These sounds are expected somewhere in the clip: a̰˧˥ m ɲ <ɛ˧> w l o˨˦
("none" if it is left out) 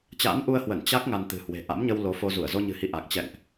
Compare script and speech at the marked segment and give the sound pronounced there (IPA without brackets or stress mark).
ə˧